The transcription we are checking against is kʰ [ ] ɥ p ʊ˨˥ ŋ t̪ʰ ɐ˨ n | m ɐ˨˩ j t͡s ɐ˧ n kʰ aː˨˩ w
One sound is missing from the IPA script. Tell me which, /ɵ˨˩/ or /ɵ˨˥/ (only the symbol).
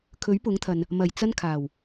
ɵ˨˥